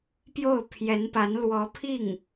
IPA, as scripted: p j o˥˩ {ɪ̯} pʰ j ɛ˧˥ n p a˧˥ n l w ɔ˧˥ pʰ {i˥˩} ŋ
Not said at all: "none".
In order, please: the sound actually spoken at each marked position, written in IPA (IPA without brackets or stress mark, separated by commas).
ʊ̯, i˥˩